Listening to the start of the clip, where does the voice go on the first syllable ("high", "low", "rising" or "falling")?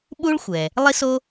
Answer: high